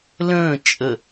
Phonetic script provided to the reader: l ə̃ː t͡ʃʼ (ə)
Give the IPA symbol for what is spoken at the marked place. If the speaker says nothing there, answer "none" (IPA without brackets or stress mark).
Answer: ə